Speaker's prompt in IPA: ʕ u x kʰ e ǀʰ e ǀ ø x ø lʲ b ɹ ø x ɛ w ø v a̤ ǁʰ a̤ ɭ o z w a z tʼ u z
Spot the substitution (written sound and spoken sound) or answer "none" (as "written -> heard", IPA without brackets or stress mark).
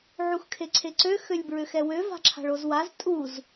none